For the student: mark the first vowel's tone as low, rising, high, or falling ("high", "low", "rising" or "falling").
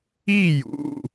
falling